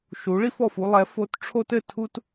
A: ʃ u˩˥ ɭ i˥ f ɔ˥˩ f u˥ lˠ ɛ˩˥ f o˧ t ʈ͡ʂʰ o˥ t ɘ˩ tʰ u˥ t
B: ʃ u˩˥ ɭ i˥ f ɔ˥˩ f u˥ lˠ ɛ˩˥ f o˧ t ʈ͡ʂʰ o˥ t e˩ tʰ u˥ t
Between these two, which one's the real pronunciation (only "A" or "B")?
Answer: A